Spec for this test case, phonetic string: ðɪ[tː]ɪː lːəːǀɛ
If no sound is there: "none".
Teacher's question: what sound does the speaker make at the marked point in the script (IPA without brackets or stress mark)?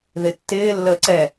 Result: tː